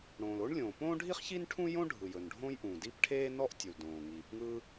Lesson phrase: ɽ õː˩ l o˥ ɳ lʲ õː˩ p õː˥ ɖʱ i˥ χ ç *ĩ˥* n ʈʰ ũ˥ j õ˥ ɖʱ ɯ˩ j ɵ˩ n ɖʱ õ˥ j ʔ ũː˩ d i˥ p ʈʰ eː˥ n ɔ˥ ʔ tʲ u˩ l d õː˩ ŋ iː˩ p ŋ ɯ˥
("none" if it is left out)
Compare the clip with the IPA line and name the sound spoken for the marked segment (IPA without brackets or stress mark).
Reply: i˥